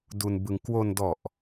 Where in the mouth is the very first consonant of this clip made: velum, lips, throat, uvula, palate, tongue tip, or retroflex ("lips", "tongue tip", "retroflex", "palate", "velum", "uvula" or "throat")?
tongue tip